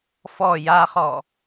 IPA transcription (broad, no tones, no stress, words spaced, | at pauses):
fɔ jaχɔ